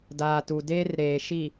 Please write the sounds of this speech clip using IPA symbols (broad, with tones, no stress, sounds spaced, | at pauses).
d aː˨ t u˨ d eː˦ r ɾ eː˨ ʃ i˨